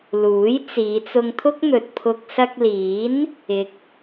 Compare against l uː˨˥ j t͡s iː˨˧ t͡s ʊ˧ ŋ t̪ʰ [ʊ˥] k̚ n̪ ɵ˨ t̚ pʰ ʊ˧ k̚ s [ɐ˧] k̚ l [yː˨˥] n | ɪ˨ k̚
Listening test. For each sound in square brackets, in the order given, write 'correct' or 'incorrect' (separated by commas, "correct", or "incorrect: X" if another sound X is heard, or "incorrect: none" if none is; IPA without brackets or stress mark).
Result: correct, correct, incorrect: iː˨˥